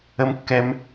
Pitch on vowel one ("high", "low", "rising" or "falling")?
high